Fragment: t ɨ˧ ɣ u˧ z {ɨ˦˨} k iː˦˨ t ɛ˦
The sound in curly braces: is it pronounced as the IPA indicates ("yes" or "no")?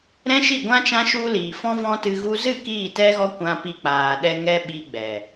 yes